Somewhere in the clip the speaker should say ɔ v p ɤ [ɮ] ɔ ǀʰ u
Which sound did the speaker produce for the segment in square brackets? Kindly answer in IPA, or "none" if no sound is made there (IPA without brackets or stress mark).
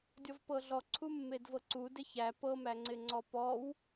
ɮ